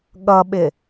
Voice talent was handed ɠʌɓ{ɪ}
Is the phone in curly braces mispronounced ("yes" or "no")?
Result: no